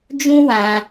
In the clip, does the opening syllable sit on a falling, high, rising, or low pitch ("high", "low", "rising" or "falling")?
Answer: high